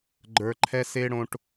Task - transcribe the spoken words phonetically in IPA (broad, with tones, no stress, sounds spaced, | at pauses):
ɡ͡ǃ ə˞˨ ǃʰ ɛ˦ s e˦ ɽ õ˦ ʈ